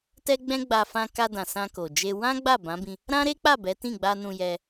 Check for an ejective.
absent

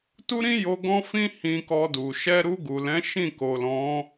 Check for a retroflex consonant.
absent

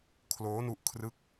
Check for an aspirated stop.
present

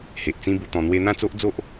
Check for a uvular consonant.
absent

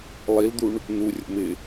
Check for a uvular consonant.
absent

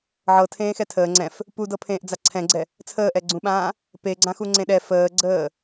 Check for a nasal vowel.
present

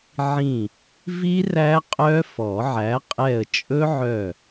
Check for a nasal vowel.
present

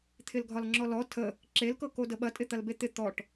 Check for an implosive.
present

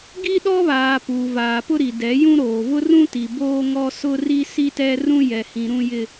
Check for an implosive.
present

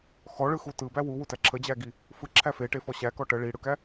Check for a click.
present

